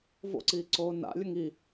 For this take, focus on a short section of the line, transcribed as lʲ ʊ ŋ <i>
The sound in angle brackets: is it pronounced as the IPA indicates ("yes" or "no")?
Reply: yes